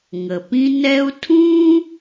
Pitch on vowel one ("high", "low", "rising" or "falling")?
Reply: low